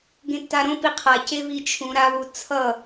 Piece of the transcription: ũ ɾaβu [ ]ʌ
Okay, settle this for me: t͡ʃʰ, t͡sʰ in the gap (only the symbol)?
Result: t͡sʰ